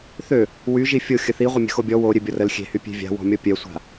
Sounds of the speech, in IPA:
θø | wy ʒifʲo xʲəθiʁʷəmʲə̤ xobʲɔ wo ɾʲøbʲɔrəl xʲe̤hy pʲe̤vʲa̤ wɔ̤mʲɔpʲœsʷa̤

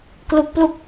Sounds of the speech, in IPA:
klu˦˥k̚plu˥˩k̚

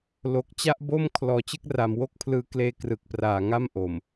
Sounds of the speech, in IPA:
lo˨˩k̚t͡ɕa˥˩ʔ bo˥˩m kʰlɔː˩˦t͡ɕɯ˥˩k̚ra˩˦m wo˥˩k̚pʰlɯː˧ kleː˧krɯ˨˩k̚praː˨˩ ŋa˥˩mʔo˨˩m

